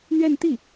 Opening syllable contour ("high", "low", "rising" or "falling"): falling